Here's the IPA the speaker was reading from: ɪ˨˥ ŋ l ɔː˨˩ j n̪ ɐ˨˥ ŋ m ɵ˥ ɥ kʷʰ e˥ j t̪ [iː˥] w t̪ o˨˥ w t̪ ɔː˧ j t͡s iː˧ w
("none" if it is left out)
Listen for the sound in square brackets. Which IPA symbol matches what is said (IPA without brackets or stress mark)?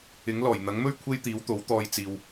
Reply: iː˨˥